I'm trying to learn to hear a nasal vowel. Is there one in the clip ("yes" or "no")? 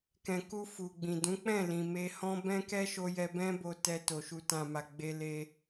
yes